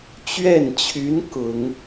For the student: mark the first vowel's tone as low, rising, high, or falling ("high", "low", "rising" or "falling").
falling